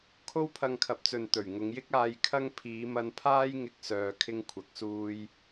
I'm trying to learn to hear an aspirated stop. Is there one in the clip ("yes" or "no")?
yes